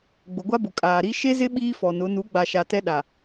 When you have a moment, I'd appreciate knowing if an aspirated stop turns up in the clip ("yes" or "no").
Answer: no